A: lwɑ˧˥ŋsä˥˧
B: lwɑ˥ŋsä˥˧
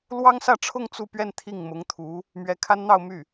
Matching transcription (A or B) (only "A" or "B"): B